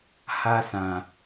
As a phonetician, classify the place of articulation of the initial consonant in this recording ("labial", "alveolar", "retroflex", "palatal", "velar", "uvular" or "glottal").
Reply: glottal